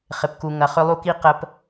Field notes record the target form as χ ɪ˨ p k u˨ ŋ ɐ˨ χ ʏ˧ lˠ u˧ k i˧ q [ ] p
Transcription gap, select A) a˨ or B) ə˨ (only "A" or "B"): B